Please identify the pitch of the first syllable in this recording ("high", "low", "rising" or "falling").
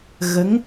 rising